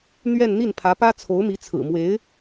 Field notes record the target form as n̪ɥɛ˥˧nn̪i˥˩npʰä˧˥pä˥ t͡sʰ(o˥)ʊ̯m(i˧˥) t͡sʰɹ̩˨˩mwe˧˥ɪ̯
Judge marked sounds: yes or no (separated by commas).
no, yes